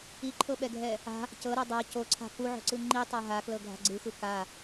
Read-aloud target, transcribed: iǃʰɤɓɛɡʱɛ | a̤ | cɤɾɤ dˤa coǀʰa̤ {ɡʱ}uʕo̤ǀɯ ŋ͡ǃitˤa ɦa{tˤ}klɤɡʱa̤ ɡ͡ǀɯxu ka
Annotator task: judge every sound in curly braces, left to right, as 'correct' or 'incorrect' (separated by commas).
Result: incorrect, incorrect